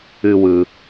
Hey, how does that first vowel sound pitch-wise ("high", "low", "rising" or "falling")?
low